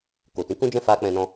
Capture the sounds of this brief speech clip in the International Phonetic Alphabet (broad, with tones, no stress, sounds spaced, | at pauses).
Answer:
k o˨ t ĩ˨˦ k ũ˦ d͡ʒ ɛ̃˦ f a˦ k͡p ɛ̃˧ n ɔ̃˧